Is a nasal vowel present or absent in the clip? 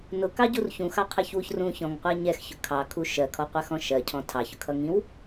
present